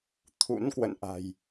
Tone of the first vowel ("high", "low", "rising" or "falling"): rising